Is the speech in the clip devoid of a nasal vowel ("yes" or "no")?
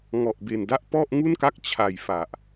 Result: yes